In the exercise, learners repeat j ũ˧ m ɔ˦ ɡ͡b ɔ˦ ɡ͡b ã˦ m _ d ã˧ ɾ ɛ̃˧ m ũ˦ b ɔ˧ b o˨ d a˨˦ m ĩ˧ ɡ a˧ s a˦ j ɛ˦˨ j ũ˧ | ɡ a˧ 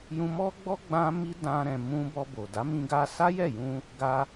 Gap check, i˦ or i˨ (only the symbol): i˦